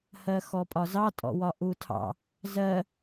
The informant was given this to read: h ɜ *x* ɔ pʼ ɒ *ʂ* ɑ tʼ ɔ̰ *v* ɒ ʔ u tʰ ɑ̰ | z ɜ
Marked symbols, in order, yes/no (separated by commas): yes, no, no